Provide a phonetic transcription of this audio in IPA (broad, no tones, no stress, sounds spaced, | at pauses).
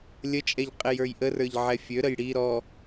lʲ ə t͡ʃʼ ɛ ʎ qʼ e j ə˞ j ʔ ə r ə˞ ʎ ʕ ɛ fʲ ø ɾ ə j ɽ i ɾ ɔ